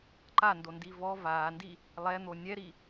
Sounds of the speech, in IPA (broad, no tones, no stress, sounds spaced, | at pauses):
ǃ a n d o n d i v ɔ v a n d i | lˠ ɛ n̪ o nʲ ɛ ɾ i